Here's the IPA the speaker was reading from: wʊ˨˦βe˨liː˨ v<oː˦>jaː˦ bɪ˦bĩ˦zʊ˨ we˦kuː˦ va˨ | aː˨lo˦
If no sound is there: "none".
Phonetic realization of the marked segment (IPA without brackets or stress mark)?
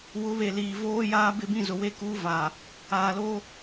oː˦